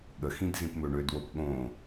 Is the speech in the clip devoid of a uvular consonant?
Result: yes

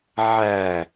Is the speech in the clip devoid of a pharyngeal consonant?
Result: no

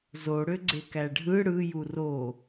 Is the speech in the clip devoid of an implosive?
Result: yes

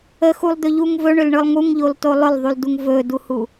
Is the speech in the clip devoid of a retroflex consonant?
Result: no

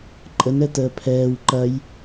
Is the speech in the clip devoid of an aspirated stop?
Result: no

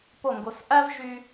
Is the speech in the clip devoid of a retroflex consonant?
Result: yes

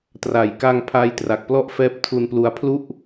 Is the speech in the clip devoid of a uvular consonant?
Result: yes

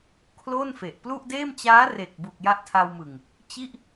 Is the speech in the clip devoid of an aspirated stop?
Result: no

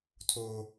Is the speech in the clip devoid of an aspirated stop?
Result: no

